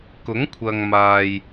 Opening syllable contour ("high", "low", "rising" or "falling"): rising